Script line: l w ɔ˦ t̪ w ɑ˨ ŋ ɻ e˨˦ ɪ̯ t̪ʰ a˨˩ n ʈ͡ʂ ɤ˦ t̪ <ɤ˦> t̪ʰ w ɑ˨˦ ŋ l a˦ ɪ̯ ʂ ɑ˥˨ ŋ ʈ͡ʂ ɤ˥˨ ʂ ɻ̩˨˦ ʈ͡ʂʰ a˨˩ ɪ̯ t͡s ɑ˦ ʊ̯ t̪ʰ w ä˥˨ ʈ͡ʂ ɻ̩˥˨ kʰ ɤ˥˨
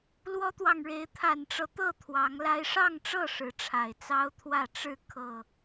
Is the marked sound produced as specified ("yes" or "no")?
no